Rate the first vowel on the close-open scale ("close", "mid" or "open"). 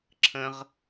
mid